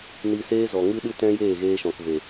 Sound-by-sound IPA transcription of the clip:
ni˧seː˦zɔ˨ ŋɨ˦ɗɨ˦ tɛ̃˦jeː˦˨ɣeː˧ ʃɔ̃˨kve˨

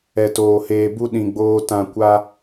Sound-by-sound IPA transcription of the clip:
ɛ˧toː˧heː˧bu˦ ɗĩ˧ɡ͡boː˦ tã˦ kʷa˦

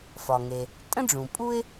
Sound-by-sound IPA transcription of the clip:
fɒ˩ŋe˩ | tʼə̃˥ɖ͡ʐũ˩pʼu˥ɪ̯

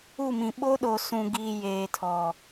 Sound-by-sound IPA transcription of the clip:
u˦˨mĩ˨ ɓo˦ɗo˨ sũ˨ɡiː˨ jeː˨tʰɔ˨

